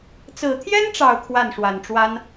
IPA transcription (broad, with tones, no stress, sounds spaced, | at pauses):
t͡s ɹ̩˨˩ t̪ʰ j ɛ˥ n ʈ͡ʂ ɑ˨˩ ʊ̯ kʰ w a˥˩ n ʂ w a˨˩ n ʈ͡ʂ w a˥ n